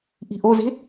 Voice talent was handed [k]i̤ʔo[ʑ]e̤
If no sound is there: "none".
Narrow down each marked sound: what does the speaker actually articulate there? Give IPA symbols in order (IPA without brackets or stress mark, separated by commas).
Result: ʔ, z